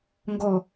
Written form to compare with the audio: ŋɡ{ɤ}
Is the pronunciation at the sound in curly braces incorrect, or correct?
incorrect